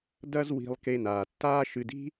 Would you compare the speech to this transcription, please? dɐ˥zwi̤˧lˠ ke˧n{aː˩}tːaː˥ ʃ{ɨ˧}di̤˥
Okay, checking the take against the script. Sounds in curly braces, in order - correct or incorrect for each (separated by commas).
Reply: correct, correct